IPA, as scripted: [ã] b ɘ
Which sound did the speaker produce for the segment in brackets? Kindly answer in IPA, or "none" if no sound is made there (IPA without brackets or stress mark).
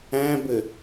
æ̃